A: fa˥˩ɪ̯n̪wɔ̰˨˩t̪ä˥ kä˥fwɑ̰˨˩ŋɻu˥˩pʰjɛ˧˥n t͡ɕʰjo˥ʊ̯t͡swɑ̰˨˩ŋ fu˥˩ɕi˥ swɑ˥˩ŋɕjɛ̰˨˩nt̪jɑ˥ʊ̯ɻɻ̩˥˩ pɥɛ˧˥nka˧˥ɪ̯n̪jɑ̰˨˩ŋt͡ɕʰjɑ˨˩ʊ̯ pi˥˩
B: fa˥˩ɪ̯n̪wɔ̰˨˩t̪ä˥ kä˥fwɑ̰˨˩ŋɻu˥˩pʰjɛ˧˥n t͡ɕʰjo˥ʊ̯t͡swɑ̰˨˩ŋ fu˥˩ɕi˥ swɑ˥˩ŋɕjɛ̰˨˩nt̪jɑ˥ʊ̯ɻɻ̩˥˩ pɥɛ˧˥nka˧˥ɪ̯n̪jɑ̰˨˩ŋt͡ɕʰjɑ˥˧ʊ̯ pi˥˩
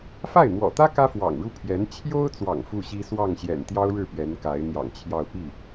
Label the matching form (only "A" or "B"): B